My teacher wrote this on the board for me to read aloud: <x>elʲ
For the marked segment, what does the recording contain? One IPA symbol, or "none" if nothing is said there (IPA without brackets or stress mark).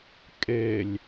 kʼ